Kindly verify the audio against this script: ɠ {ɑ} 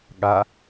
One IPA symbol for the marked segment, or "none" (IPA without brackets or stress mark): a